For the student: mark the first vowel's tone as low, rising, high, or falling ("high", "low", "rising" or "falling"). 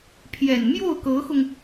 low